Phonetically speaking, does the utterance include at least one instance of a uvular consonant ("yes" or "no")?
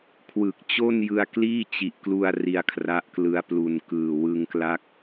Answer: no